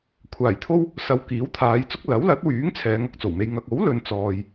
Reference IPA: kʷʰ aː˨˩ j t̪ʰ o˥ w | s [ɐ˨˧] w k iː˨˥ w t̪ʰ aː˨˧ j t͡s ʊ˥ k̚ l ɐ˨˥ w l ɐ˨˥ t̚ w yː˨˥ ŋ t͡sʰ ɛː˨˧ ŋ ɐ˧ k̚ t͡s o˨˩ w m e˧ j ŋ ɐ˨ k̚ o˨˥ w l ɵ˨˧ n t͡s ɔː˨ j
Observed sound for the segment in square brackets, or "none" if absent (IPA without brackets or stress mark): ɐ˨˧